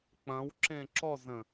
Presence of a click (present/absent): present